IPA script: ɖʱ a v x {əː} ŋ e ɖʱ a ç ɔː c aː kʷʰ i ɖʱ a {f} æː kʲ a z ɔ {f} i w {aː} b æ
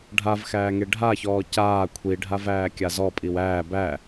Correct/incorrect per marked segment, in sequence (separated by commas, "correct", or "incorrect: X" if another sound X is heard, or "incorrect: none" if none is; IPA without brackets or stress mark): incorrect: æː, incorrect: v, incorrect: pʼ, incorrect: æː